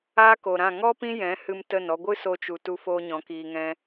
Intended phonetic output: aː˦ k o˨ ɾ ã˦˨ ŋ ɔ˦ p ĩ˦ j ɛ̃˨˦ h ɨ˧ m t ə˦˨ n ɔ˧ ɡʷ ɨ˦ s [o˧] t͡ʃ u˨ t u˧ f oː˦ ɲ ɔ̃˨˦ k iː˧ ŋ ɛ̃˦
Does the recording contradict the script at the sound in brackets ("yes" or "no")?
no